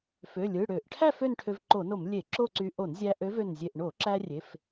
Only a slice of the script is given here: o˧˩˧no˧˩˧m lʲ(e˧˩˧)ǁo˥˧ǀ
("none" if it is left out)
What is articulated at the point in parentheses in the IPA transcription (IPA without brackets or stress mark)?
e˧˩˧